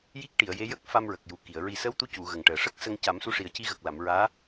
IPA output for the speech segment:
j i˦˥ k̚ ʈ i˨˩˨ ə̯ j e˧˥ j ə˦˥ k̚ f a˧ m ɹ ə˨˩ k̚ j u˨˩ k i˨˩˨ ə̯ ɹ i˨˩ s ə˧˥ w t̪ u˧˥ c u˨˩˨ ɣ ə˨˩ ŋ ʈ əː˨˩ ʂ ə˦˥ k̚ s ə˧ ŋ c a˨˩˦ m s u˧ ʂ i˨˩ ə̯ c i˧ ɣ ə˨˩ k̚ l a˨˩˨ m ɹ aː˧˥

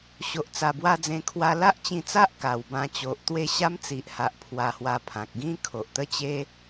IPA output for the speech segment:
ɕ o˨ ʔ t͡s a˨˩ b w a˧ d͡z ẽ˧ kʰ w a˧ l a˦ ʔ t͡ɕ ĩ˧ t͡s a˦ ʔ k a˨˩ w b ã˧ t͡ɕ o˨ ʔ t̪ w e˥˧ ɕ a˦ m t͡s i˨ ʔ h a˨ ʔ pʰ w a˧ h w a˧ pʰ ã˨ k̚ ɡ ĩ˦ kʰ o˨ ʔ t̪ ə˦ t͡ɕ e˦

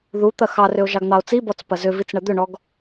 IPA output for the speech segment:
ð u t̪ ɐ x ɑ r ʏ o̯ ʒ ɑ ɡ n̪ ɑ o̯ t͡s i b ɔ t͡s p ɐ z ʏ v i t͡s ɳ ɐ d̪ ʏ ɳ ɔ ɡ

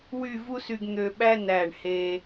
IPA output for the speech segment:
w y˥˧ v u˥ s y˧ ɡ n̪ ø˧ ɓ æ˥ n æ˧˩ ɳ h e˧

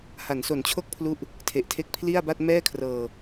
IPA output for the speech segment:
h a˩˦ n s o˨˩ n t͡ɕʰ o˥˩ k̚ pʰ l u˦˥ ʔ | tʰ e˨˩ ʔ tʰ e˦˥ k̚ pʰ l i˥˩ a̯ b a˥˩ t̚ m ɛː˥˩ kʰ r ɤː˧

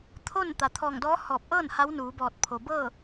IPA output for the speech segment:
t̪ʰ o˥˨ n t̪ a˩ t̪ʰ ɔː˧˩ ŋ d ɔː˧˥ h ɔː˧˩ p̚ ʔ ɤː˥˨ n h a˧˥ w n uː˩˧ b ɔː˧˩ t̚ pʰ o˩ b ɤː˥˨

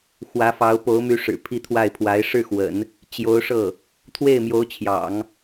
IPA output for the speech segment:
x w ä˧˥ f ɑ˧˥ ʊ̯ p o˧˥ ʊ̯ m y˧˥ ʂ ɻ̩˨˩ pʰ i˥˧ t̪ʰ w a˥˩ ɪ̯ pʰ w a˧˥ ɪ̯ ʂ ɻ̩˥˩ x w ə̰˨˩˦ n | t͡ɕ j o˧˥ ʊ̯ ʂ ɤ˥˩ | t̪ʰ w e˥˩ ɪ̯ m j o˧˥ ʊ̯ t͡ɕʰ j ɑ̰˨˩˦ ŋ

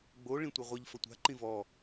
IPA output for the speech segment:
ɡ͡b o ɭ ĩ tʷ ɐ ʁʷ ɐ ʎ f ɐ tʷ a̤ ǃ ĩ v ɔ

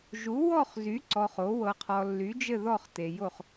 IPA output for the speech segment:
ʒ u˨˥ w ɔ˥˧ χ z y˨˥ ǀ ɔ˧ χ o˨˥ w ɤ˧ qʰ ɔ˧ lː y˨˥ d͡ʒ ɘ˥˧ ð ɔ˥˧ χ t e˧ j o˥˧ χ

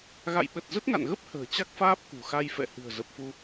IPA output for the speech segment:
ɣ a̰˧˨ j ɓ ə˨˩ t̚ z ə˦˥ t̚ ŋ a̰˧˨ n ɣ ə˦˥ p̚ h ə̤ː˨˩ t͡ɕ a˦˥ k̚ f aː˦˥ p̚ k ṳ˨˩ x a˧ j f ɛ̰˧˨ h ɨ̤˨˩ ə̯ z ə˨˩ p̚ f u˧

